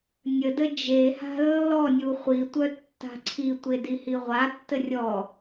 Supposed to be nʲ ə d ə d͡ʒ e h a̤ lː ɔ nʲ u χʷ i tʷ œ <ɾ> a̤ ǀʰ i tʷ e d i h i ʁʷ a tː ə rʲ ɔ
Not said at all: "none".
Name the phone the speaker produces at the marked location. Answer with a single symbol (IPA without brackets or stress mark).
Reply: tː